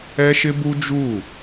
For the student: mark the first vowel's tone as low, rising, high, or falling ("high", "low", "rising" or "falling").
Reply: high